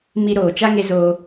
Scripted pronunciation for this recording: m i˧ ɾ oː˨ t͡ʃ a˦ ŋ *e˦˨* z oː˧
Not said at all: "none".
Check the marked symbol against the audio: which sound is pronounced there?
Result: e˧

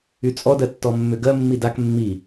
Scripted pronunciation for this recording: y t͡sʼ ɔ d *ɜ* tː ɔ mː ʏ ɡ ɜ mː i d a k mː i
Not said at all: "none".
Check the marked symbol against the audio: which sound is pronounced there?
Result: ɜ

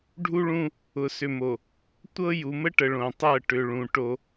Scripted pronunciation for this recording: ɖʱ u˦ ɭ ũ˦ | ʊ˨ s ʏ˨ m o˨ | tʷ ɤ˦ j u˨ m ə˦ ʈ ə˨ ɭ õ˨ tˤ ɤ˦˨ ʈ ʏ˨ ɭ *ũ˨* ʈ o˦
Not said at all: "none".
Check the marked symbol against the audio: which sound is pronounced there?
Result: ũ˨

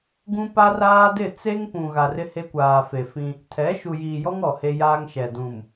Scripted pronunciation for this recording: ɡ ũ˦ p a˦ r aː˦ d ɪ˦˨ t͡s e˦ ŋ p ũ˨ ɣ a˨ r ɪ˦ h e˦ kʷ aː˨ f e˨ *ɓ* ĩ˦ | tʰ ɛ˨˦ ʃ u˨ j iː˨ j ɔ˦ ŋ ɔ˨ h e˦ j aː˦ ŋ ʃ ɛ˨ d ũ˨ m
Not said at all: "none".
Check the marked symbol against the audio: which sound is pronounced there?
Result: f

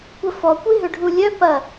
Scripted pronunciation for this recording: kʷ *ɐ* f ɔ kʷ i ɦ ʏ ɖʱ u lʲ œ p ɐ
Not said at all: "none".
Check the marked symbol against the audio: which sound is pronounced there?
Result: ɐ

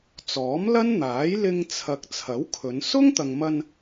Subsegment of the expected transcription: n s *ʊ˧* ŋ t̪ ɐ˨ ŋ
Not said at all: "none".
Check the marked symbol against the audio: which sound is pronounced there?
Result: ʊ˥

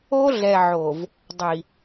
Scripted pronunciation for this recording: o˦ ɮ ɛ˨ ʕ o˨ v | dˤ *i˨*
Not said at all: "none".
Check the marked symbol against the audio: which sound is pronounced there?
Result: i˨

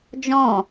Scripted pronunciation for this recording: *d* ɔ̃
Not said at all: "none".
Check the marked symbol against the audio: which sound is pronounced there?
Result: d͡ʒ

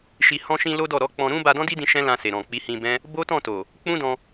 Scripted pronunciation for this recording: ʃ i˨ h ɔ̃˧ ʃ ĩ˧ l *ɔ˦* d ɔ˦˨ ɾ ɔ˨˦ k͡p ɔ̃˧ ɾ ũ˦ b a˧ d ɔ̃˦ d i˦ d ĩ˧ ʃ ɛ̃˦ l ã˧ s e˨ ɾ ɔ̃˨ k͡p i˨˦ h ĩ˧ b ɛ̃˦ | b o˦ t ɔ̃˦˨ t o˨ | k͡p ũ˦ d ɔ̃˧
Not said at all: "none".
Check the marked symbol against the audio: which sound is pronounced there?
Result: o˦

